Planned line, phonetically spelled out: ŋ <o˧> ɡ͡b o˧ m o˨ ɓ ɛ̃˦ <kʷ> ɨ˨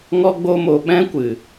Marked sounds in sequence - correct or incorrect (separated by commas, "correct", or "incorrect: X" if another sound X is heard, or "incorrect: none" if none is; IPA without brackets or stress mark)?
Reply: incorrect: ɔ˧, correct